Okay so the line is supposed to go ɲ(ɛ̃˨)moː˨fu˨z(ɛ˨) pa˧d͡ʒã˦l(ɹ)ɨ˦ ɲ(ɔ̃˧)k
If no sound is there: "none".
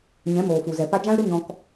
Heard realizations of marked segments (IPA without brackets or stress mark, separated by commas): ɛ̃˨˦, ɛ˨, ɾ, ɔ̃˧